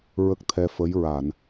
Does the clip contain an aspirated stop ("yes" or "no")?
yes